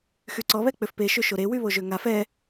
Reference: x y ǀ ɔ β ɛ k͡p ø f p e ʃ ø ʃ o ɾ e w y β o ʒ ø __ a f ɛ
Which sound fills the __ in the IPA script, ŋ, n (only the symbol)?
ŋ